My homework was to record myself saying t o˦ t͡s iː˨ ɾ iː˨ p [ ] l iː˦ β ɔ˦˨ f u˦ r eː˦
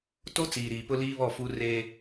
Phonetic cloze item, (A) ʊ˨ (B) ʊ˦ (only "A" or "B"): B